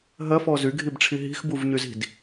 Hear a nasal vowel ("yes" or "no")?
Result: no